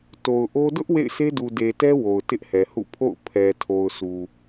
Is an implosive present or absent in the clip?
absent